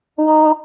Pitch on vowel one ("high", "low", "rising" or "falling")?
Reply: high